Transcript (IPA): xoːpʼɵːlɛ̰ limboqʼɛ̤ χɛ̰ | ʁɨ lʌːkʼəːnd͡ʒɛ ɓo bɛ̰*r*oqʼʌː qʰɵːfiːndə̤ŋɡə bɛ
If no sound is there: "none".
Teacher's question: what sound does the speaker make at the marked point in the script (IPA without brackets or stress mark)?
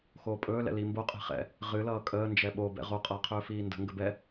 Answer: ʁ